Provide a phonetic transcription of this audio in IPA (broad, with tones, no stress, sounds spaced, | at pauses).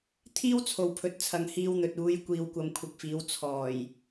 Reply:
t̪ʰ iː˥ w t͡sʰ o˨ w pʰ ɵ˨ t̚ t͡sʰ ɐ˨ ŋ h iː˧ w n̪ ɵ˨ t̚ uː˨˧ j kʷ iː˨ w kʷ ɐ˨ m kʷʰ ɪ˨ k̚ f iː˨˧ w t͡sʰ ɔː˨˩ j